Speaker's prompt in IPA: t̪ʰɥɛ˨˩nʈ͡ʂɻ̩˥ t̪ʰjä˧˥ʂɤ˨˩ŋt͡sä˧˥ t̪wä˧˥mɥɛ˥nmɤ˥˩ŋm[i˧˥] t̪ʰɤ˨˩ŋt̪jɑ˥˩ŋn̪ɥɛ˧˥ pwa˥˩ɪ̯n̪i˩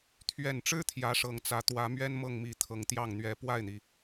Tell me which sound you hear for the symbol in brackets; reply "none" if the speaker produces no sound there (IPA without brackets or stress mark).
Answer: i˧˥